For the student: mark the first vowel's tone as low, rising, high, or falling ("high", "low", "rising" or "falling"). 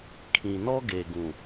low